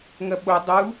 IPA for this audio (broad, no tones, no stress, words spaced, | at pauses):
ŋɐɓo dˤu